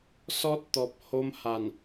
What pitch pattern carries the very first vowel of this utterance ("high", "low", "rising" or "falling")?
high